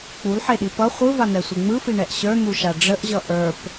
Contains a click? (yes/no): no